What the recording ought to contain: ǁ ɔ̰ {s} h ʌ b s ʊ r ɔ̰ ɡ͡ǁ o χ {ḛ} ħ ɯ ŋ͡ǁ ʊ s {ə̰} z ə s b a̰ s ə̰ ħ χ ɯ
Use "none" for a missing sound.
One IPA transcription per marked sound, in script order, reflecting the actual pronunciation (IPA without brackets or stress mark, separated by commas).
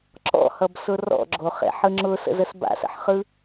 none, ḛ, ə̰